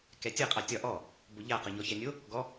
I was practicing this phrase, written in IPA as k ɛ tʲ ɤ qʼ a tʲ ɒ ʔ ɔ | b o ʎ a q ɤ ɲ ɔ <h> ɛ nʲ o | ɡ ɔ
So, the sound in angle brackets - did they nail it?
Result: no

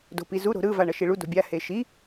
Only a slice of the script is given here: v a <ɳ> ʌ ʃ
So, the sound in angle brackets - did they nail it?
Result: yes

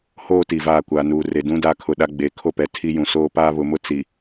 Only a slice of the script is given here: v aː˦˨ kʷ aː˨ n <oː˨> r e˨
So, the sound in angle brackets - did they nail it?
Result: no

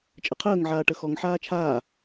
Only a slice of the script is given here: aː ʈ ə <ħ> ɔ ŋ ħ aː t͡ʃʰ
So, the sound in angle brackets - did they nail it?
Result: no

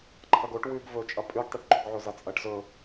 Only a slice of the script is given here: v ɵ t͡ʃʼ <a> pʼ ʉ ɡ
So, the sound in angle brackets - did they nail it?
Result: no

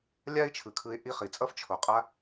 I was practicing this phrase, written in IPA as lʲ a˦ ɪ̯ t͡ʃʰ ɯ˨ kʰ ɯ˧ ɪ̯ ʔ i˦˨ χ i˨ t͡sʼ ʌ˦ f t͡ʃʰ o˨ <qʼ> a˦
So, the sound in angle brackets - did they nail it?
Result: yes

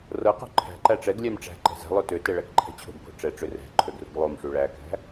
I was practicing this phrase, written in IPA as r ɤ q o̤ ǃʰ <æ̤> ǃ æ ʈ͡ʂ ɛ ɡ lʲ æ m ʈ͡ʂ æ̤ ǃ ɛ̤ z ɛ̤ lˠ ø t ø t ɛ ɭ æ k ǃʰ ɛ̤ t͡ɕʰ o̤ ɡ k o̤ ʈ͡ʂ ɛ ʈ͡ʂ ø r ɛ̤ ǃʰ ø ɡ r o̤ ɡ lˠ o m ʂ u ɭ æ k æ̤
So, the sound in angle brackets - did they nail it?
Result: yes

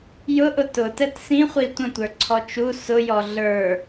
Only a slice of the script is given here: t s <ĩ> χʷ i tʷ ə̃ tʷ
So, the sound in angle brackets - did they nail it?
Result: yes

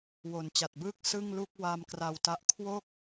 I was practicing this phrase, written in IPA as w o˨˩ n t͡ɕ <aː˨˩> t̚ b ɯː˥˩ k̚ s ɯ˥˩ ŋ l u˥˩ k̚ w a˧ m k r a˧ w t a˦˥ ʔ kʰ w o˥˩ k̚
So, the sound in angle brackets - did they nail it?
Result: no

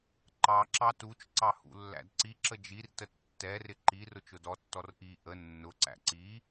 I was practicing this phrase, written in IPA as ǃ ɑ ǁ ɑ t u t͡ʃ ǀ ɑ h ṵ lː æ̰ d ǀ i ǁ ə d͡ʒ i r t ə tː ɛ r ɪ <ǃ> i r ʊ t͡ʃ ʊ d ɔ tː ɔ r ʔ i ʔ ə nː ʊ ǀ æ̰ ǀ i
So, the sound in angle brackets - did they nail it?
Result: yes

